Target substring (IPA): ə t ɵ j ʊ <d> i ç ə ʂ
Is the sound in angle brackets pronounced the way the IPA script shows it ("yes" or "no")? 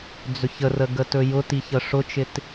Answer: no